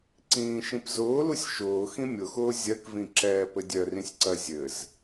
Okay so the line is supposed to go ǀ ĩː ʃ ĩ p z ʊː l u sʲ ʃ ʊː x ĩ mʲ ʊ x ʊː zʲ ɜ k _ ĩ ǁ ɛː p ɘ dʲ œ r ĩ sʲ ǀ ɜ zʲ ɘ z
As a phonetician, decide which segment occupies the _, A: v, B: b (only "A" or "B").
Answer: A